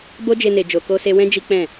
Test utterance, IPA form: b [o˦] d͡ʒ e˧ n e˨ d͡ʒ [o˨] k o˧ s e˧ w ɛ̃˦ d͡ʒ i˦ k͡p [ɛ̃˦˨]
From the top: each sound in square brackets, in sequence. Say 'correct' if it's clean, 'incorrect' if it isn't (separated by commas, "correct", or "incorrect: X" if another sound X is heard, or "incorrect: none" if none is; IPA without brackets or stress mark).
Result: correct, correct, correct